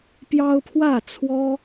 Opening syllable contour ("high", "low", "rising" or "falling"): high